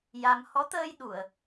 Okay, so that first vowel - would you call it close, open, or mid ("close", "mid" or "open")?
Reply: open